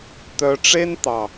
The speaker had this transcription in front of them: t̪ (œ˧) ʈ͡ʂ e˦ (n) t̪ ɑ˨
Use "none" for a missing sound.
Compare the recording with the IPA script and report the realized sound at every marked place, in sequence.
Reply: œ˧, n

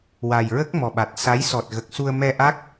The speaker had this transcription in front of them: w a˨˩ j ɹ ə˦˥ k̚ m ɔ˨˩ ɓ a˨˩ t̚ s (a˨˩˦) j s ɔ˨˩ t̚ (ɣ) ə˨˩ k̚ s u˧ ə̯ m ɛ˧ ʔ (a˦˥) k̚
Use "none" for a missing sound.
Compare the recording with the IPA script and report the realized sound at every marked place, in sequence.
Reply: a˧˥, ɣ, a˦˥

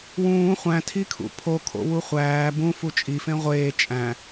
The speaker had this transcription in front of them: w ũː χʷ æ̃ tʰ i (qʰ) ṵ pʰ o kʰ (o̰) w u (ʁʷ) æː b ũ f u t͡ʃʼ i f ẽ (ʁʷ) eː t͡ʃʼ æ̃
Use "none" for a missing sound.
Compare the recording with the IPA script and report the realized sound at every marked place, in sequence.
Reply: kʰ, o̰, χʷ, ʁʷ

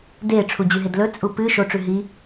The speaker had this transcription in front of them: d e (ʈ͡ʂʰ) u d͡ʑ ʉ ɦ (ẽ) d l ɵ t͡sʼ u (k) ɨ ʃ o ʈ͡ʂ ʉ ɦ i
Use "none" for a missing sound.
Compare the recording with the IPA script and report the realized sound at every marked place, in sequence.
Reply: ʈ͡ʂʰ, e, p

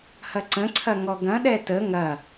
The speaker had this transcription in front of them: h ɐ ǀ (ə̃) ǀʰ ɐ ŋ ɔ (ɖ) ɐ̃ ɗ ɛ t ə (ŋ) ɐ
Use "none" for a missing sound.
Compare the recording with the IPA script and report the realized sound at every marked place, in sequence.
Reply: ə̃, ɡ, ŋ

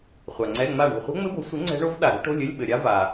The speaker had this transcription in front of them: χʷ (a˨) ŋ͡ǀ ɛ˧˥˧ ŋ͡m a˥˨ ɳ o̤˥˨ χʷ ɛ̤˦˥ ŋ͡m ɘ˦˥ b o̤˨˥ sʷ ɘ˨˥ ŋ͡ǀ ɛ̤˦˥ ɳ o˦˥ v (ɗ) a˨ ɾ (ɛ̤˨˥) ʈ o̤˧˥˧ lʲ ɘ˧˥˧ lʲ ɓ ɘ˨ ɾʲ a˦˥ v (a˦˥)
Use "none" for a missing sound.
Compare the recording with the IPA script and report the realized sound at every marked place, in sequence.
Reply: a˨, ɗ, ɛ̤˦˥, a˨

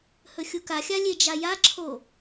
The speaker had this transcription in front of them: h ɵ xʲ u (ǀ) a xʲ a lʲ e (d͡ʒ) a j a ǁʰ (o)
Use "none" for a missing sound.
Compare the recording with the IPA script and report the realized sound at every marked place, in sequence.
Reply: k, d͡ʒ, o

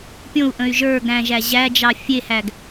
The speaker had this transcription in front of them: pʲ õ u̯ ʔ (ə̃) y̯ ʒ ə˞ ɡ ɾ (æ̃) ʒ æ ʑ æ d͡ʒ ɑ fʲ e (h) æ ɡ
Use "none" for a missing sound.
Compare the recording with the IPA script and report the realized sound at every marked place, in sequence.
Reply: ə̃, æ̃, h

